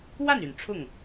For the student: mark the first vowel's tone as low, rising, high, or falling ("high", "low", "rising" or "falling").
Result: falling